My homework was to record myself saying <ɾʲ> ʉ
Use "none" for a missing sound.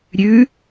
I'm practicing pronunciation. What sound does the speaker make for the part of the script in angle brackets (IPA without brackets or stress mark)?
ɾʲ